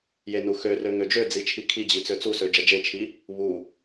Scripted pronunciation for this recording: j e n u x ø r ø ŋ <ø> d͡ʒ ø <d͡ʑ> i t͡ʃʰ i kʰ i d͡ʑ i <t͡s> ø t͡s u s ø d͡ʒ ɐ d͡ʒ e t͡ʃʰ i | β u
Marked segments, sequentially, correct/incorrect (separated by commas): correct, incorrect, correct